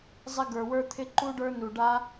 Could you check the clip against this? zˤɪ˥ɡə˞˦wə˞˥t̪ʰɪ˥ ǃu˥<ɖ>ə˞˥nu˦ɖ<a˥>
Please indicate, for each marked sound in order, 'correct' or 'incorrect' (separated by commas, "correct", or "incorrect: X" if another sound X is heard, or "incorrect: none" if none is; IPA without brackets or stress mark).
correct, correct